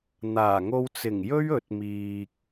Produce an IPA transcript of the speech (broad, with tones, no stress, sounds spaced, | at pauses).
n̪ aː˨˩ ŋ o˧ w t͡s ɪ˨˩ ŋ j ɵ˥ ɥ ɵ˨˥ t̚ m iː˨ k̚